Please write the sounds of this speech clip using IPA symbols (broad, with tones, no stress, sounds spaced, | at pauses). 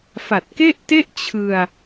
f a˨˩ t̚ k e˥˩ ʔ t e˥˩ ʔ t͡ɕʰ ɯ˧ a̯